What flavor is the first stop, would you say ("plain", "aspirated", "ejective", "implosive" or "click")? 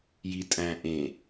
ejective